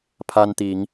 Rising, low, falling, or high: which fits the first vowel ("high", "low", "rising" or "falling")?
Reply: high